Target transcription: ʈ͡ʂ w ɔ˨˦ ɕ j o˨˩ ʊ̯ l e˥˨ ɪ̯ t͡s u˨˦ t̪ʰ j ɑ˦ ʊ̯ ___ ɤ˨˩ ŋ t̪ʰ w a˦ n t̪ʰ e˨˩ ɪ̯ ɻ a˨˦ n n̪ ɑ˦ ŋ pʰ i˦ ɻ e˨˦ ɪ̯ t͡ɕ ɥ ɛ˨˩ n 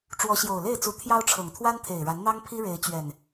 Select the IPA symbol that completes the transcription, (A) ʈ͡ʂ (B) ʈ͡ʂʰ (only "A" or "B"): B